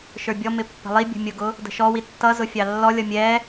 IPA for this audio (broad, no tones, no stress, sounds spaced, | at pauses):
ʃ ə˞ bʲ ɔ m ɪ pː ə̤ lˠ i bʲ ə̤ mʲ ʊ ɡ ʊ | d ə̤ ʃ ɔ w i tː ʌ z ʊ fʲ ɑ lː ɔ lʲ ʌ mʲ ɛ